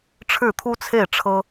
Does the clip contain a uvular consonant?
no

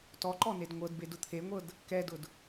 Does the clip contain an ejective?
no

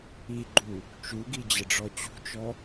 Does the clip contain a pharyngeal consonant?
no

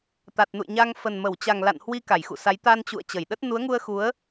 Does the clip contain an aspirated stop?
no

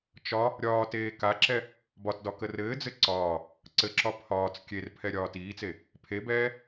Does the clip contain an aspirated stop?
yes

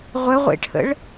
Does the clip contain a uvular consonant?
yes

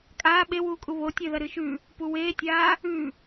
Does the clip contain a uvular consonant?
no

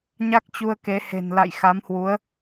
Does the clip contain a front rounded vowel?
no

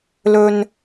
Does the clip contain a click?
no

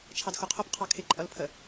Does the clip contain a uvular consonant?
yes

